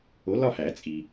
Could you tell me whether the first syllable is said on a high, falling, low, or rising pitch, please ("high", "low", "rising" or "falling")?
rising